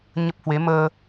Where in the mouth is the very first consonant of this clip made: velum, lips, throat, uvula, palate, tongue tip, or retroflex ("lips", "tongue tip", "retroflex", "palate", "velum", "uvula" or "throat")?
palate